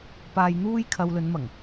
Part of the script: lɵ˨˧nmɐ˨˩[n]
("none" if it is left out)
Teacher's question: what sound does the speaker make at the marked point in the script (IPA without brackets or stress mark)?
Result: ŋ